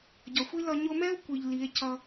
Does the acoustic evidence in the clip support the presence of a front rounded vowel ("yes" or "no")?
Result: no